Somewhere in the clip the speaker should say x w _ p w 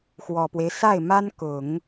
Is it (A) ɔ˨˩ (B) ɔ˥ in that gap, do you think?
A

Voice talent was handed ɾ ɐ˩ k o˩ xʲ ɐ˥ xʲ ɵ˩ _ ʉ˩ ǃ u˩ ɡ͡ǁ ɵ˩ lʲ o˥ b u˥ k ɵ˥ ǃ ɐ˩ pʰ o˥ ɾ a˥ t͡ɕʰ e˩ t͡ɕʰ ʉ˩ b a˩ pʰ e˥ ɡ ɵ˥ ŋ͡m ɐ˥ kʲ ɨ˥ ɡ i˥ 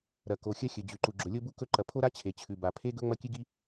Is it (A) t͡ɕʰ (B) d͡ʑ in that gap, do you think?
B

